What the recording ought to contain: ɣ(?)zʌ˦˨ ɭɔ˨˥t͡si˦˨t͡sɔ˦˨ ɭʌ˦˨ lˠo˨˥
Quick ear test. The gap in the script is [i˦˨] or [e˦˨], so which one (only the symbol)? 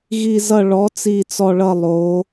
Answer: i˦˨